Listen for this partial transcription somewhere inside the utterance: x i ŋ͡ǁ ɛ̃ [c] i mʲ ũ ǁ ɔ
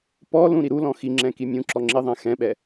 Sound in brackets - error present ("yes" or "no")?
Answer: yes